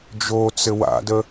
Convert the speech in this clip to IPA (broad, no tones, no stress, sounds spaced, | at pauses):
d͡ʒ o t͡s ɘ w a̰ d ə